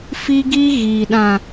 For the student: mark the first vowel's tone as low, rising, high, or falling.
high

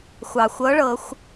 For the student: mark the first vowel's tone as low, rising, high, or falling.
low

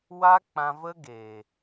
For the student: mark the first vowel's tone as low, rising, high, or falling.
high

